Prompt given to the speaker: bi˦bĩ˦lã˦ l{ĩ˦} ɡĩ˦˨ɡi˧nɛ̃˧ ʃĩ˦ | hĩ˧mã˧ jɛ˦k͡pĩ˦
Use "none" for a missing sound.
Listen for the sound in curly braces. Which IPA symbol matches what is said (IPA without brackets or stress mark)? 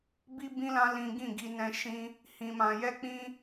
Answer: ĩ˦